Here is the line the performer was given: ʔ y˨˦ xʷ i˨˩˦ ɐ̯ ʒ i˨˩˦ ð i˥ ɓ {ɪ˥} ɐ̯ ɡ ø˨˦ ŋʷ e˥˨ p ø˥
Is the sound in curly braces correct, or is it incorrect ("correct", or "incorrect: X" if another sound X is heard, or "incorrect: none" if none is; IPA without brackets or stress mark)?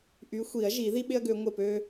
correct